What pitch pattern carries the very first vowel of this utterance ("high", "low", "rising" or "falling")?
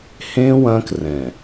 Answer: high